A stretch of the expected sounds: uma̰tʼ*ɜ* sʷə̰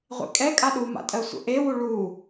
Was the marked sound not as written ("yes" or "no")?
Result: no